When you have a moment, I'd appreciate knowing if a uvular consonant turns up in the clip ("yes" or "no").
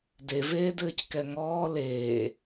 no